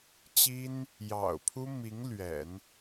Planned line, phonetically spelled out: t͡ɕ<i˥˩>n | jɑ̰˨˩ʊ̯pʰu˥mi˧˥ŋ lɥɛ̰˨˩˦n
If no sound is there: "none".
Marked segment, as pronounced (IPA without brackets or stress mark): i˥